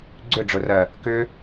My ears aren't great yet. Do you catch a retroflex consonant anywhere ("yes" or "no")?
yes